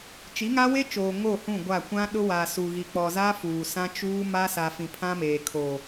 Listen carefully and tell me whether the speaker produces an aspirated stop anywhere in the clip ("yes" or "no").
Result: yes